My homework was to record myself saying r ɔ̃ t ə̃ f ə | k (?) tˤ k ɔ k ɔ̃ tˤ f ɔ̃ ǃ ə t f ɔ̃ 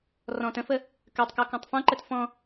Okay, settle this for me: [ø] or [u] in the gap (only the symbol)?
ø